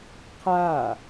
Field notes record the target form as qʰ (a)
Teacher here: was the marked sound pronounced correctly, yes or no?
yes